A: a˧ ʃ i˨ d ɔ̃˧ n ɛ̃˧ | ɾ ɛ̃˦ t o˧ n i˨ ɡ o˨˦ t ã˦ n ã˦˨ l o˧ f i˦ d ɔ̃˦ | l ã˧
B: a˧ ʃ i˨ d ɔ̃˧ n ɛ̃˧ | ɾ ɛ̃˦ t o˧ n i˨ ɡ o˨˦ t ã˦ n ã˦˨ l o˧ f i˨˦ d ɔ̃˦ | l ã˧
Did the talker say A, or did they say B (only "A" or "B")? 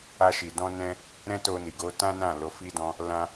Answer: A